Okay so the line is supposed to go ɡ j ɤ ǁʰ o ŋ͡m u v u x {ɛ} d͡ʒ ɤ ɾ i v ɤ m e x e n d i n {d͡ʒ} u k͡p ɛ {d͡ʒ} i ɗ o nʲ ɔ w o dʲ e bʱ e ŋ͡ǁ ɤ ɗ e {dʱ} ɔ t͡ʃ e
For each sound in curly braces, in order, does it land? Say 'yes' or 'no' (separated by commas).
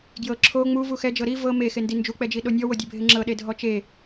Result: yes, yes, yes, yes